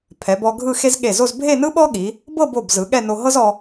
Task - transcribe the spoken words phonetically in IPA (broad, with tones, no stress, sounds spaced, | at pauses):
pʰ ɛ˩˧ b ɔ˧ ɡʱ ɯ˥˧ x e˥ z ɠ e˧˩ z o˥˧ z bʱ e˥˧ n ɯ˥ ɓ ɔ˥ ɠ i˩˧ | b ɤ˥˧ b o˧˩ b z ɯ˩˧ ɠ ɛ˥˧ n o˧ ɦ ɤ˥ z ɔ˧